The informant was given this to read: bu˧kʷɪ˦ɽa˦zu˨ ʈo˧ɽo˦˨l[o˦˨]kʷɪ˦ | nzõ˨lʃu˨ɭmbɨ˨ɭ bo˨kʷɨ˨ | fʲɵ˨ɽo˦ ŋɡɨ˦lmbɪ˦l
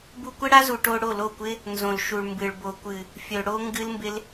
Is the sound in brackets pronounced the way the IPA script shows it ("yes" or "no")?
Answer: yes